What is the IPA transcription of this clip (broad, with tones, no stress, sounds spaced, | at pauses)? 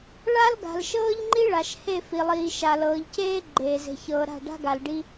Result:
ɭ a˦ l ɡ a̤˨ l ʃ ɤː˦ ʎ ŋ͡ǃ i˦ ɭ a˨ ʃ h e˦˨ f i˨ lˠ iː˨ ʃ a˨ l ɤː˨ ʎ c eː˦ ɡ͡ǃ eː˨ z e̤˨ ç ɤː˨ ɾ a̤˦˨ ɖ a̤˦ ɡ a˨ l ɖ i˦